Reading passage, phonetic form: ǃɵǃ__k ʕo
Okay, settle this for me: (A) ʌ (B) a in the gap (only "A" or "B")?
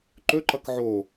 A